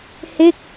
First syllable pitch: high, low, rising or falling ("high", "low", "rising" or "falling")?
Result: falling